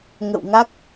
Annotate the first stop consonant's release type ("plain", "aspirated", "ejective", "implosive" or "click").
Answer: plain